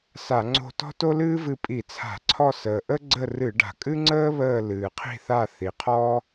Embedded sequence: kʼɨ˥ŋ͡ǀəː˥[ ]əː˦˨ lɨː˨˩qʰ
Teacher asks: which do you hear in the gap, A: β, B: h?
A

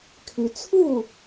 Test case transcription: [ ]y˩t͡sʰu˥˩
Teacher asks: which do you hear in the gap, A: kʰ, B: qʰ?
A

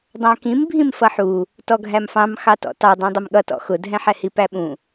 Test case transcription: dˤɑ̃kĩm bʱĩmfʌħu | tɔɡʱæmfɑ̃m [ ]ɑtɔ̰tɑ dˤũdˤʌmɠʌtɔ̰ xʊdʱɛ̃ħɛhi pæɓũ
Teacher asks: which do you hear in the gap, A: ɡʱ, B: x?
B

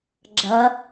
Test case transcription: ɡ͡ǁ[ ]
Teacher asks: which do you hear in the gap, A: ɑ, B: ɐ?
B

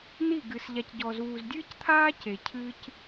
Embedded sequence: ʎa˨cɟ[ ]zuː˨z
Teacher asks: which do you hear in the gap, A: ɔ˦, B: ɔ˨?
B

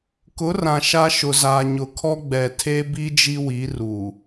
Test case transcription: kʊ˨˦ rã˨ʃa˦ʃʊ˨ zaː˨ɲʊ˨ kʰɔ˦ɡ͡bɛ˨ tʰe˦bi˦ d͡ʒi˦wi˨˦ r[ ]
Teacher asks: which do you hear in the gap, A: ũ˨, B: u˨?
B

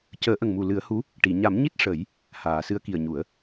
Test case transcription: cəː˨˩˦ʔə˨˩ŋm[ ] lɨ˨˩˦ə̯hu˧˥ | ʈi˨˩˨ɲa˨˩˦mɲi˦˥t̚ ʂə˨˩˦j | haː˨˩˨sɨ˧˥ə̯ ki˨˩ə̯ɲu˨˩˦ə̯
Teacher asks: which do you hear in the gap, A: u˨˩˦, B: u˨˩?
B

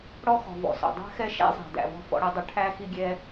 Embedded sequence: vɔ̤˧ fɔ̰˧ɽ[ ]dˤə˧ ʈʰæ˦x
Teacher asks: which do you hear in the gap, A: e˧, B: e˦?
A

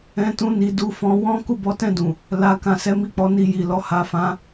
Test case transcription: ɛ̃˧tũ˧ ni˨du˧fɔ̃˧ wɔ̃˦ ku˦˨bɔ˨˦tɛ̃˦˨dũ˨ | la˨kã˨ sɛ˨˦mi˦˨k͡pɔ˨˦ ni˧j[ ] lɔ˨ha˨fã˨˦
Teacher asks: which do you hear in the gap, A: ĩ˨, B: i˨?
B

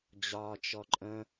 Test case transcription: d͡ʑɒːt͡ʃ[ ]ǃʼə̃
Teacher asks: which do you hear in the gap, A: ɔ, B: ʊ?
A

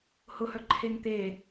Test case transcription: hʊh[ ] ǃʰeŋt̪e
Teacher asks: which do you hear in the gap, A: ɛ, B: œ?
B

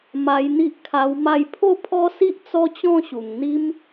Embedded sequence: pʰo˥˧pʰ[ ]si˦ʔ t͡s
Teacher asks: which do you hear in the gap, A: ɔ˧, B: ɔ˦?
B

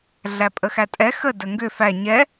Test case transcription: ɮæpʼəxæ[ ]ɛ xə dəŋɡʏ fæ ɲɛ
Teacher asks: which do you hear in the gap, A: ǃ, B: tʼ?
B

